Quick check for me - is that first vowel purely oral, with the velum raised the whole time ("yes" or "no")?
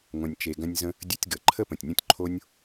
no